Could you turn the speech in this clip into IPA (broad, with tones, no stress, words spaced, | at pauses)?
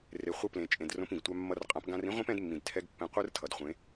re˨ χʷɯ˧plẽ˨t͡ʃʼẽ˨d rõ˧pĩ˨ɡ tʷa˧mːʌ˧rqʼã˨˦p ɡã˧rĩ˦ʁʷĩ˦p ɛ̃˦dmːĩ˨d tʰɛ˧ɡpːɛ̃˨ qʷɯ˦r tʰʌ˨dχʷẽ˨˦